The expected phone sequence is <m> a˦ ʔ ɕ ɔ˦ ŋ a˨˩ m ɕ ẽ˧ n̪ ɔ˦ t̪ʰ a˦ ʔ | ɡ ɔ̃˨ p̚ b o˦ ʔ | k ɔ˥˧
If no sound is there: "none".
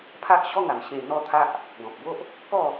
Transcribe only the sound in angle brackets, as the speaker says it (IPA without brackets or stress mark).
pʰ